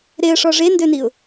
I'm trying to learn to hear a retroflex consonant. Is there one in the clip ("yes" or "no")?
yes